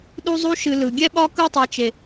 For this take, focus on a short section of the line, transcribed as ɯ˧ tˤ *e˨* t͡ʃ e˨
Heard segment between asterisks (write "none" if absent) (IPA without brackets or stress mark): e˨